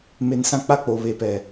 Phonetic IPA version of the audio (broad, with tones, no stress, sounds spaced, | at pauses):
m e˨ n s ã˦ k͡p a˦˨ k͡p o˨ β e˨ p ɛ˨